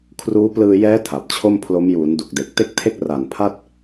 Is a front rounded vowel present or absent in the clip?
absent